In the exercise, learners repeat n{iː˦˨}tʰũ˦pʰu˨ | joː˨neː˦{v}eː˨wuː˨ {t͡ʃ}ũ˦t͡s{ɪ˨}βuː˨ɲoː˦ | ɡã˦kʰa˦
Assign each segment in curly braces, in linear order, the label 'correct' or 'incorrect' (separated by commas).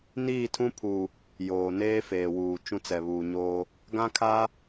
correct, incorrect, correct, incorrect